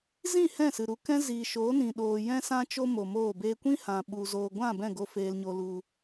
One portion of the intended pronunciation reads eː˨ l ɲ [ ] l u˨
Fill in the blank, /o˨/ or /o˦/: o˨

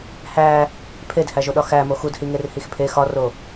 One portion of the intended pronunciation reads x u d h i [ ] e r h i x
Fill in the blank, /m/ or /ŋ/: ŋ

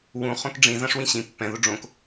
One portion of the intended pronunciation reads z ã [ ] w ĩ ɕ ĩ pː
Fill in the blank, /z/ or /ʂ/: ʂ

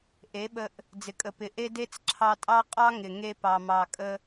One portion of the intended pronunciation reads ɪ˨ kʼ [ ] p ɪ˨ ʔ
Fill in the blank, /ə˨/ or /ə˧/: ə˨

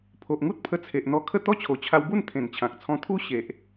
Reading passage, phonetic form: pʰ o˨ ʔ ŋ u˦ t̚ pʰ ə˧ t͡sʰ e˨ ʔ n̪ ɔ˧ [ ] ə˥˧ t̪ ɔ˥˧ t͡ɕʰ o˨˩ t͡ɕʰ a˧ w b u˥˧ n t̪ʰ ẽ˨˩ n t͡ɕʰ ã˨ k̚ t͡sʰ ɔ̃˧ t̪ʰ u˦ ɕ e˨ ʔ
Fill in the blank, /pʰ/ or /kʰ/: kʰ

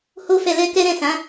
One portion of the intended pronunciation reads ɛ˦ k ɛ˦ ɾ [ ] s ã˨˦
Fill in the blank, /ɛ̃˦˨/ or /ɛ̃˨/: ɛ̃˦˨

